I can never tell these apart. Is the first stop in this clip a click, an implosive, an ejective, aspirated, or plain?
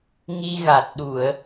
plain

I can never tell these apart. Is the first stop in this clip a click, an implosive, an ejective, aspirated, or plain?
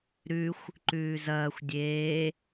click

